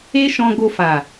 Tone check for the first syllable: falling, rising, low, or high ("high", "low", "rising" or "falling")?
high